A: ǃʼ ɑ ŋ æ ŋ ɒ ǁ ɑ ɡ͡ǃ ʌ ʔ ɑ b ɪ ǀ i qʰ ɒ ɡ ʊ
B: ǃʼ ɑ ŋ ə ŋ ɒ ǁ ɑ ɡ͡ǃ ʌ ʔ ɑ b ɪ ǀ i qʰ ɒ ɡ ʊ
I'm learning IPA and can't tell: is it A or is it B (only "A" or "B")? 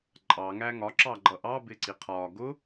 A